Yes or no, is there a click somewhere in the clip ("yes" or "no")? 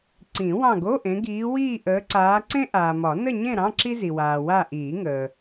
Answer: yes